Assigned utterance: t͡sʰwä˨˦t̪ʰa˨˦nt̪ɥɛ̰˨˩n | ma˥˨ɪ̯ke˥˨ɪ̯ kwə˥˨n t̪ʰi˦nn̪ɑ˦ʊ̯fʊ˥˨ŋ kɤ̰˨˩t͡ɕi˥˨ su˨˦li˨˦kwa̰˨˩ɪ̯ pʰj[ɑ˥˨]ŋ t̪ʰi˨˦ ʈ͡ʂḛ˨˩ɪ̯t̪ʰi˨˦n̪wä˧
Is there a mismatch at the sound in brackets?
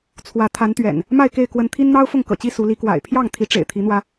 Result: no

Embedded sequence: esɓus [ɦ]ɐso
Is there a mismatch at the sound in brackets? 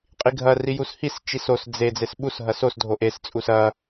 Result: no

